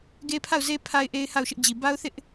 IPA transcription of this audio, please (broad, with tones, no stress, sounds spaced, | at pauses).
ɡ e˦ pʰ a˦˨ ʊ̯ z e˦ pʰ a˦ ɪ̯ ʔ e˦ ɪ̯ h a˦˨ ʊ̯ ʃ ɪ˦ ʔ d͡ʑ i˨ b a˦ ʊ̯ θ ɪ˦ ʔ